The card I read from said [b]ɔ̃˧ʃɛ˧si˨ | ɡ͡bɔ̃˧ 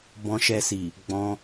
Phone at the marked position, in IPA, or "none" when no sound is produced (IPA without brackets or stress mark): b